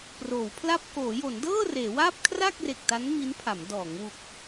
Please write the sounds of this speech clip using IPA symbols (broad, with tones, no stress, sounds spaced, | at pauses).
p r oː˩˦ w pʰ l a˥˩ p̚ k oː˩˦ j o˩˦ n d ɤː˥˩ r eː˩˦ w aː˥˩ p̚ kʰ r a˥˩ k̚ r e˨˩ k̚ t a˦˥ n m i˦˥ n pʰ a˩˦ m d ɔː˩˦ ŋ w u˨˩ k̚